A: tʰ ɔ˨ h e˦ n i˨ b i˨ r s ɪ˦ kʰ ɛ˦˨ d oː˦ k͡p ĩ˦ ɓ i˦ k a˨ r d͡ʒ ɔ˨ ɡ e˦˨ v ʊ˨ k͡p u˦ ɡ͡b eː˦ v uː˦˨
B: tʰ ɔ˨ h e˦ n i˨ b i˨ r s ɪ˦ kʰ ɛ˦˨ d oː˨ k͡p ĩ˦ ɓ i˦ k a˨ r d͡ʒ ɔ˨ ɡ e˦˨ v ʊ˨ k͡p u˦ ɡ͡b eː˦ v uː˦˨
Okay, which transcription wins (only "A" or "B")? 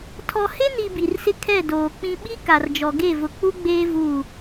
B